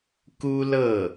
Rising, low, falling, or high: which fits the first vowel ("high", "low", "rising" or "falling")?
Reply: high